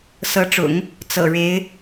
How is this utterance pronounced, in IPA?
sɤ˧˥ʈ͡ʂʊ̰˨˩˦ŋ | t͡sɤ̰˨˩ɻe˧˥ɪ̯

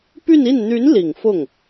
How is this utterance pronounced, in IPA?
py˥˧ni˥˩n n̪y˧˥n li˨˩ŋfʊ˥˩ŋ

